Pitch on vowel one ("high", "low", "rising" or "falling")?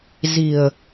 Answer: low